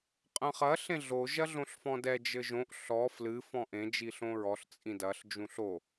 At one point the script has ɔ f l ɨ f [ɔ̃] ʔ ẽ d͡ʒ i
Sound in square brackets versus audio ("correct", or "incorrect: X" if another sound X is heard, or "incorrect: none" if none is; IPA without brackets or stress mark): correct